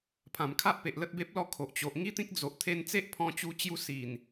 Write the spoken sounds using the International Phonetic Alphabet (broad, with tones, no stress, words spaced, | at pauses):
pʰã˨˩mkʰa˦ʔpe˨ʔ lə˦t̚be˦p̚lɔ˦kʰo˨ʔ t͡ɕo˨ʔŋi˦t̪ĩ˦k̚d͡zo˨ʔ t̪ʰe˧nt͡se˦ʔ pʰɔ̃˧t͡ɕu˧t͡ɕju˧si˨˩n